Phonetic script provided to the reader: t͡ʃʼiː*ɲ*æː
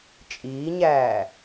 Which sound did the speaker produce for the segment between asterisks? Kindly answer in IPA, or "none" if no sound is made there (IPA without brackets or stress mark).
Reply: ɲ